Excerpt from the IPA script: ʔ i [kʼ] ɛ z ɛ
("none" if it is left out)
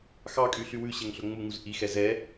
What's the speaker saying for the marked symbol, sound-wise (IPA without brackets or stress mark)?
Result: x